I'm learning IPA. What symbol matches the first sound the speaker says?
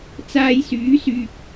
t͡s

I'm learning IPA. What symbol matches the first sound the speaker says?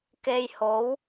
k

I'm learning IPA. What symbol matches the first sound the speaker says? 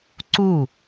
ǀ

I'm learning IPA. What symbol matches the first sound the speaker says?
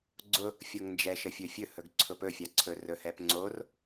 ɡ͡ǀ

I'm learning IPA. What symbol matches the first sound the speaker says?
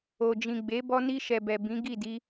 o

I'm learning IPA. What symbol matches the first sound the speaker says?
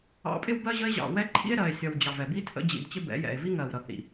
ɑ̰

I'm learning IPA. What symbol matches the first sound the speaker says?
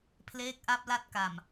pʰ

